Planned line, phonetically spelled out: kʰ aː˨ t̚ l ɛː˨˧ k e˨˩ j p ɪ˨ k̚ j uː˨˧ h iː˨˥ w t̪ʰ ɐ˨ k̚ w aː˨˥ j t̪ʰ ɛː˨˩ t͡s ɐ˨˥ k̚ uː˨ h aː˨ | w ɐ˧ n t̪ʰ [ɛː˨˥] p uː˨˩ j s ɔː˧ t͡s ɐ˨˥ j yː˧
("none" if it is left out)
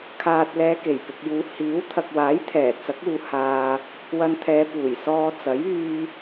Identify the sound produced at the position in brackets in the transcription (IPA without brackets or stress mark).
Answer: ɛː˨˧